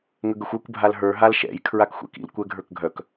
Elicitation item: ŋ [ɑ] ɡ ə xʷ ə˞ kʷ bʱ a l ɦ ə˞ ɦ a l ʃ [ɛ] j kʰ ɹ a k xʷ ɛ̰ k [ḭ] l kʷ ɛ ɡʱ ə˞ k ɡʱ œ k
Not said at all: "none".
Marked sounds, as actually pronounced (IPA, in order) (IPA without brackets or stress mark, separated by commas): ə, ɛ̰, ḭ